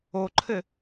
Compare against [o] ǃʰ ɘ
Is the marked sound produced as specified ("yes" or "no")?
yes